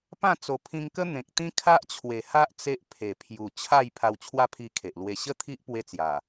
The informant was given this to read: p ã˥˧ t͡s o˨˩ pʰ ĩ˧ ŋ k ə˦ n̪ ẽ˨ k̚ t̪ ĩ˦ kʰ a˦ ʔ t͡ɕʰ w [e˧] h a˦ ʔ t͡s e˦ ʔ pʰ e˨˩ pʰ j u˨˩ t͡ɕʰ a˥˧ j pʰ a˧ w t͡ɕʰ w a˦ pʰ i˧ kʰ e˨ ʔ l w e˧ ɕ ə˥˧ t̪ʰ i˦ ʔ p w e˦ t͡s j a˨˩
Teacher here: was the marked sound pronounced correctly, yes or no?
no